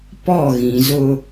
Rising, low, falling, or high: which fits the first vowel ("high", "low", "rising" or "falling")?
falling